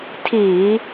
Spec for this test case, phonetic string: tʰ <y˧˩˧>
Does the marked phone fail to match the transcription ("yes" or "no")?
yes